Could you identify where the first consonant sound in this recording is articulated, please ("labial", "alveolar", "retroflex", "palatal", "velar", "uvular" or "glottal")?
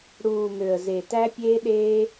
retroflex